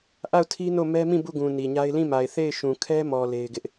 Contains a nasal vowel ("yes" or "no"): yes